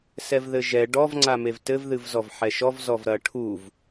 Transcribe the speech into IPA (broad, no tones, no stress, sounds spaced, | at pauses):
s ɛ v ð ɘ ʒ ɛ ɖ ɔ v ŋ͡ǀ a m e v t ɘ v ð ɨ v z ɔ v ħ ɛ ʃ ɔ v z ɔ v ɾ ɐ ʈʰ u v